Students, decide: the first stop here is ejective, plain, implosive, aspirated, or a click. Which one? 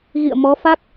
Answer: plain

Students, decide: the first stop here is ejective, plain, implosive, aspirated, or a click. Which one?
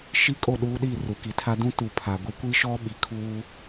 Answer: ejective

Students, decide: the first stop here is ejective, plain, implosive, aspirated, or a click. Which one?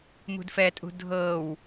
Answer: plain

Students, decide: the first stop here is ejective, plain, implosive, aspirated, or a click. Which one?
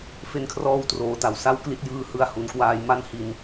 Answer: aspirated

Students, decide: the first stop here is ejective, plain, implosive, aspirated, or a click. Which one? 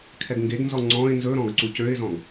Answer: aspirated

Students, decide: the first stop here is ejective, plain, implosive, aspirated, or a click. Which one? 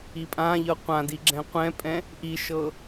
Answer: ejective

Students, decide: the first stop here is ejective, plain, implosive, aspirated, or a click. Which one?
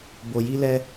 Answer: plain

